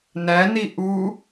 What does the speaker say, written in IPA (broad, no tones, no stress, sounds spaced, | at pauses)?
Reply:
n æ n i ʔ u